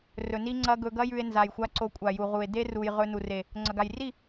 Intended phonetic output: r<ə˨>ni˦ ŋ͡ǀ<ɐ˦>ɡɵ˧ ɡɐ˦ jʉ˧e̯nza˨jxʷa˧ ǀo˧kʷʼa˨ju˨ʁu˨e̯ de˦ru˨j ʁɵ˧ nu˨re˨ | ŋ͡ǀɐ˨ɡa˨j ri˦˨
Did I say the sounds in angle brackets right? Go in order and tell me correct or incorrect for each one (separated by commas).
incorrect, correct